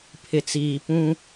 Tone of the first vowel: low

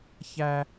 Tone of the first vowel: high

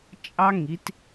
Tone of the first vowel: high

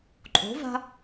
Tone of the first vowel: rising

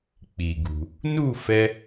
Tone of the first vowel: low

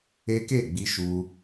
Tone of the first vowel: high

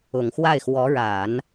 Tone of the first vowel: low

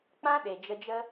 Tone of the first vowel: high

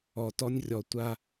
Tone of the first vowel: low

